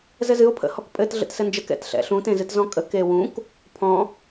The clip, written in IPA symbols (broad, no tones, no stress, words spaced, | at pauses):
zɘzɨo̯ pʰə̰hɔkpʼɘt ɮə̰tsɘnd͡ʒək ɛ̰tɬɛ̰ɬũ tẽzɨtzɔ̃kʼə kewũk | pʰɔ̃